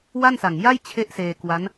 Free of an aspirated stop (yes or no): no